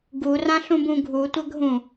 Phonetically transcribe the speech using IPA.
ɡ u r ã ɬ ũ b ũ ɡʱ u tʷ ɐ ɡʱ ũ

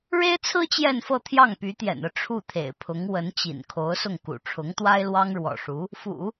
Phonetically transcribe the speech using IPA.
ɻ e˥ ɪ̯ t͡sʰ ɹ̩˥ t͡ɕ j ɛ˥˧ n f ɤ˥˧ t̪ʰ j ɑ˥˩ ŋ p y˧˥ t̪ j ɛ̰˨˩ n ɤ˥˧ ʈ͡ʂʰ u˥˩ t̪ʰ ḛ˨˩ ɪ̯ pʰ ʊ˧˥ ŋ w ə˧˥ n t͡ɕ ḭ˨˩ n kʰ o˧˥ ʊ̯ s ʊ˥˩ ŋ k ṵ˨˩ ʈ͡ʂʰ ʊ˧˥ ŋ t̪ w a˥ ɪ̯ l w ɑ˥ ŋ ɻ w ɔ̰˨˩ ʂ u˧˥ | f ṵ˨˩˦

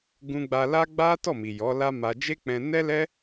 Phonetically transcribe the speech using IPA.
ɡ ũ˧ ɡ͡b a˧ l a˦ ɡ͡b a˦ t ɔ˦˨ m i˨ j ɔ˨˦ l a˦ m a˧ d͡ʒ e˦ k͡p ɛ̃˧ n ɛ˦ l ɛ˦

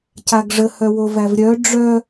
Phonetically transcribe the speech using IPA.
c a ɡ ʐ ə h œ w o v æ v ɾʲ œ ɖ͡ʐ œ

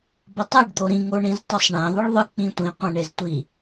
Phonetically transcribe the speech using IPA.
b ʌ tˤ e ɖ d̪ o ɾ ĩ ŋ o ɳ ĩ z tˤ ʌ sˤ ɳ ɛ̃ ðˤ ɯ ɭ ðˤ ɯ k͡p ĩ tʷ ĩ qʷ ɛ̃ ɳ e z tʷ i

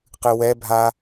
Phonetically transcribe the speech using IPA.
q ɨ w ɛ bʱ a

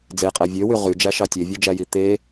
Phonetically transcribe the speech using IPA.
d͡z e qʼ æ vʲ ø w y ʁ y d͡ʒ æ ʃ ɑ tʲ e vʲ ø d͡ʒ æ j i t̪ e

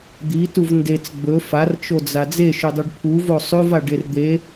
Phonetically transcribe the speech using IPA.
d̪ i t u v n d e t͡s ɡ͡b ɵ f a r t͡ʃ o d͡z a d͡z e ʃ ʉ dˤ u ɖ pʰ u v o sˤ ʉ v a ɖ e r d̪ e

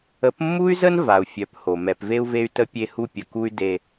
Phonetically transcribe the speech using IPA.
ə˨˦ p mː u˦ y̯ z ə˦ n v a˨ u̯ fʲ œ˨˦ p h o˨ m ɛ˨ p v e˦ u̯ v e˦ y̯ t ə˦ pʲ e˦ h u˦ pʲ ə˨ k u˦ y̯ d e˦

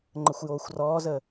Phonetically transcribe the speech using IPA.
ŋ͡ǃ ə xʷ j oː xʷ r ɔː z ə

